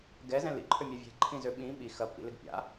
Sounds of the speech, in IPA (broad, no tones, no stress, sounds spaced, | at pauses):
ɡ ɛ z ɛ̃ l ḭ ǃʰ ø mʲ a vʲ ɛ̤ ǃʰ ĩ z ø ɓ ĩ ɓ i x ɐ pː ḭ l ɪ ɡ pʲ a̰